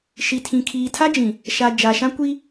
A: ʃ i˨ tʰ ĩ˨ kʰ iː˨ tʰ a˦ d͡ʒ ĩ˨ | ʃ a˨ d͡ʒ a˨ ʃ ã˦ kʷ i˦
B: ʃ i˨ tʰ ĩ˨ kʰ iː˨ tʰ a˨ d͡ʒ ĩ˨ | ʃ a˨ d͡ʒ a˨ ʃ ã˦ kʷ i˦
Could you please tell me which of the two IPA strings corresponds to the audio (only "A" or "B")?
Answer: A